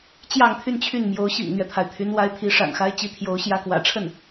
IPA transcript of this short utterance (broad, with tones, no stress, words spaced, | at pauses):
t͡ɕjɑ˥˧ŋt̪ʰy˥˧nt͡ɕʰy˥˩n mjo˧˥ʊ̯ɕḭ˨˩ŋn̪ɥɛ˦t̪ʰa˩ɪ̯ t̪ʰy˧˥nwa˧˥ɪ̯t̪ʰi˧˥ ʂa̰˨˩nxa˥ɪ̯t͡ɕi˥˩t̪ʰjo˧˥ʊ̯ ɕjä˥kwä̰˨˩ʈ͡ʂʰə˥˩n